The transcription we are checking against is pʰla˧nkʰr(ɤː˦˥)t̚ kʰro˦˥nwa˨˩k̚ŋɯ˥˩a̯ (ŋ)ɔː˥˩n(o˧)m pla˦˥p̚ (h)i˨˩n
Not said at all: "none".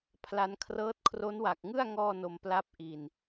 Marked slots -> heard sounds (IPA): ɤː˦˥, ŋ, o˧, ʔ

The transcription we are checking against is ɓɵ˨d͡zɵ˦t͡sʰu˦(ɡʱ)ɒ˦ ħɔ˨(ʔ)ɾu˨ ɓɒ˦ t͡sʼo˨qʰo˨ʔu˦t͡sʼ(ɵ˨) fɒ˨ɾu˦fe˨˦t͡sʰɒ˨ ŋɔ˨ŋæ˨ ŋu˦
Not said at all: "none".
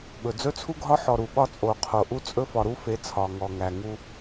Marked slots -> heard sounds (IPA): ɡʱ, none, ɵ˦

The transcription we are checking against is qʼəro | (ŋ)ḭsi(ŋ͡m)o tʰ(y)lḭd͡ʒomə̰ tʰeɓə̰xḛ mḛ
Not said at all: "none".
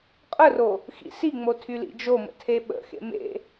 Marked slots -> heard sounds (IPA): x, ŋ͡m, y

